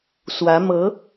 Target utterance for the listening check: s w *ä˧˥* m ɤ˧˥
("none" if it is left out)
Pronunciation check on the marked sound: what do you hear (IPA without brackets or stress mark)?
ä˧˥